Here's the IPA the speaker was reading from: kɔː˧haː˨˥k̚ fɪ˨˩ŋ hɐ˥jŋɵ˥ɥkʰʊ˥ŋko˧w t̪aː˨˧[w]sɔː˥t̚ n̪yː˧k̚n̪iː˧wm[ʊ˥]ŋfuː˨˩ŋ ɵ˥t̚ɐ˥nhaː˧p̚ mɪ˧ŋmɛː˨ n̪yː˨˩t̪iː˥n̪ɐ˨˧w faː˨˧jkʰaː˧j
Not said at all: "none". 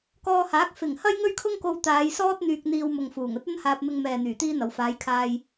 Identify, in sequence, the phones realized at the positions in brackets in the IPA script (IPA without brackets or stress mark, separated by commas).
j, ʊ˨